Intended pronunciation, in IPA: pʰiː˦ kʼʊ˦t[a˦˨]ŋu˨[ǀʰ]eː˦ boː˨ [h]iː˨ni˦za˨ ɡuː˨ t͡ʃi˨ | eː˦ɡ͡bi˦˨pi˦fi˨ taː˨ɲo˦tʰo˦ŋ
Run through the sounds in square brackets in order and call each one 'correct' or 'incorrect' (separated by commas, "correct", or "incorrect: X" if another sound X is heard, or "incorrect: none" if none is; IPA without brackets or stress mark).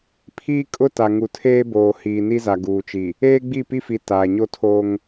incorrect: a˨, incorrect: tʰ, correct